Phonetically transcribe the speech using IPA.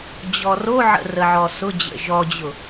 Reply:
d͡ʑ ɔ r o ʕ ə̰ r ə ʕ ɔ s ʊ d͡ʑ ə̰ ʒ ɔ d͡ʑ ʊ

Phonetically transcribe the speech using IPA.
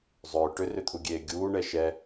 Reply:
zˤ ʏː ʈ ʏ r ʏ t̪ʰ u ɡʲ eː ɡʲ uː ɳ ɛ ʃ ɛ

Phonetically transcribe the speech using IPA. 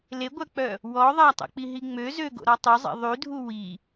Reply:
l e ɡʷ œ k͡p œ | w ɔ ðˤ a tˤ o̰ k͡p i ɦ i ŋ͡m ø z ø ɡ o̰ ɾ ɔ tˤ y zˤ ḛ ðˤ y dʱ u w i

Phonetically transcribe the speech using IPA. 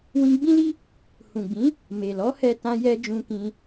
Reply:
w ĩ˧ ɡ͡b ĩ˦ l i˦ | h ũ˨ ɡ͡b ĩ˨˦ | m e˨ l ɔ˨˦ h ɛ˧ t ã˧ j ɛ˧ d͡ʒ ũ˧ k ĩ˧

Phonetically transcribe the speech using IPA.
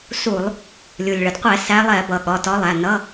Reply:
s u˧˩˧ lˠ | lʲ u˩ lʲ ɭ ə˩ d qʷ ɛ˧˩˧ s æ˨˦ lˠ ɛ˧˩˧ b ʌ˩ ɠ ɒ˩˧˩ t ɒ˨˦ lˠ æ˩˧˩ n ʌ˧˥˧

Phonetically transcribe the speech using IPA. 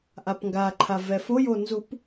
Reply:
ʔ a p ŋ ɡ a ǃʰ a v ɛ f o j o n z u p

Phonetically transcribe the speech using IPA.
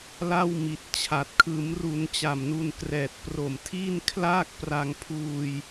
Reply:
l a˥˩ w m i˨˩ t̚ t͡ɕʰ a˨˩ t̚ kʰ ɯː˩˦ m r u˩˦ n t͡ɕ a˨˩ m n u˧ n k r ɛː˨˩ t̚ p r o˨˩ m tʰ iː˥˩ n kʰ l aː˥˩ k̚ p r a˧ ŋ pʰ uː˧ j

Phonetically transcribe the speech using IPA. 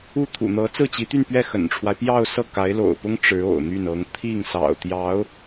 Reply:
u˥˩ t̪ʰ ṵ˨˩ n̪ ɤ˧˥ t͡s ɹ̩˥˩ t͡ɕ i˧˥ t̪ y˥˧ n p ɥ ɛ˥˩ x ə̰˨˩ n ʈ͡ʂʰ w a˦ ɪ̯ p j ɑ˥˧ ʊ̯ s ɤ˥˩ k a˧˥ ɪ̯ l o̰˨˩ ʊ̯ p ʊ˥ ŋ ʈ͡ʂ ɻ̩˧˥ o̰˨˩ ʊ̯ n̪ y˥˩ n ɤ˧˥ ŋ t̪ʰ i˥˩ ŋ s ɑ̰˨˩ ʊ̯ t̪ j ɑ˧˥ ʊ̯

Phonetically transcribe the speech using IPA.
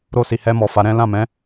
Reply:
ɾ o˧ s i˨ h ɛ˧ m ɔ˨ f a˨˦ ɾ ɛ̃˦ l ã˦˨ m ɛ̃˨˦

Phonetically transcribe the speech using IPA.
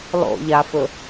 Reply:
lˠ o̰ ʎ a f ɵ

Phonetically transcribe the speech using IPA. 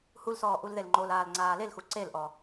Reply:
h u l s ɔː ʔ u l ð e l ŋ͡ǃ o l aː l ŋ͡ǀ aː l e l x u ǀ e l ʔ ɔ

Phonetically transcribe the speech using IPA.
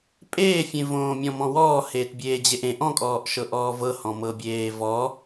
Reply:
pʼ eː fʲ ẽ v õː mʲ ɔ̃ m ɔ̃ w ɔː h eː t bʲ eː d͡ʑ e ʔ ẽ ʔ ɔ̃ kʼ ɔː ʔ ʃ ɤ ʔ ɔː v ɤ h ɔ̃ m ɤ bʲ eː v ɔ

